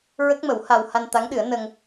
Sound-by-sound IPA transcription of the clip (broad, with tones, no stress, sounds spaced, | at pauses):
ɹ ə˦˥ k̚ m ə˨˩˦ w h a˧ w h a˧ n t̪ a˧˥ ŋ ɗ ɨ˨˩˦ ə̯ n əː˧ ŋ